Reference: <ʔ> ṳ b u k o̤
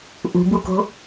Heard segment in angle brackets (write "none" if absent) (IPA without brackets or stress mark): ʔ